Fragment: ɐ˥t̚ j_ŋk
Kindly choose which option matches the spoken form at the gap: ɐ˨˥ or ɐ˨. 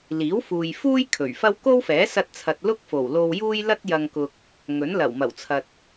ɐ˨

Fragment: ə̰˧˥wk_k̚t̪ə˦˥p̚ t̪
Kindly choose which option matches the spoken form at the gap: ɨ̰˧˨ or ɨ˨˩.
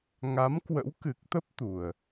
ɨ˨˩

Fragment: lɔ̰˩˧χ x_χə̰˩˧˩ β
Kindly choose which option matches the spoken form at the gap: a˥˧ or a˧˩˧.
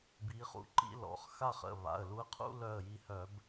a˥˧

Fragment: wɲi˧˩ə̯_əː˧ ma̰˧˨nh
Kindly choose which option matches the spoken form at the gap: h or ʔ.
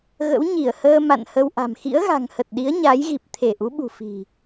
h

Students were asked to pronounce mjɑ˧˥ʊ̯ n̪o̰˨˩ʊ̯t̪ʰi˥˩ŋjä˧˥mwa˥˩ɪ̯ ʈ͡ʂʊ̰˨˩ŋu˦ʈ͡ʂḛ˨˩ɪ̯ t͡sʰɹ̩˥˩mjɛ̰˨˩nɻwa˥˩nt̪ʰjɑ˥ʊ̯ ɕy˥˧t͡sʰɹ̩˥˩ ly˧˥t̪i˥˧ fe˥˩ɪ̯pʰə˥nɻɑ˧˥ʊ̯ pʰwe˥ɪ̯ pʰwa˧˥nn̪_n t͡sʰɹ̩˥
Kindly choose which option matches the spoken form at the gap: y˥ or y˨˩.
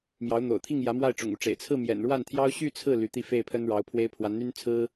y˥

